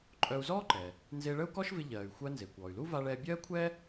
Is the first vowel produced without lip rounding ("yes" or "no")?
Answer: no